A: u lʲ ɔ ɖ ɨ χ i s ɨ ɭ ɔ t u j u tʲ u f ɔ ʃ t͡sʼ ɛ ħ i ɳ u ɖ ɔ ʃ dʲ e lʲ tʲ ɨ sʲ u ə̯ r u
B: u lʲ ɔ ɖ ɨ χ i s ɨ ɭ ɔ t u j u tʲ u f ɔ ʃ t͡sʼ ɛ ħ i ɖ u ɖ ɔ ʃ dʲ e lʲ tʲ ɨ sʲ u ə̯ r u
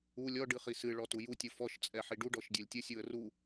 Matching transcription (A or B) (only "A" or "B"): B